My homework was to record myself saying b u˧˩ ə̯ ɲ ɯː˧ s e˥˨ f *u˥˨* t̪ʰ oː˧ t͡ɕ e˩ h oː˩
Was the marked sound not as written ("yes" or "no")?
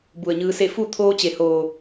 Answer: no